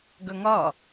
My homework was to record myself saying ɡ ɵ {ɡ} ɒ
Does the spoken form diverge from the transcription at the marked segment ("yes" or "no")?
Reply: yes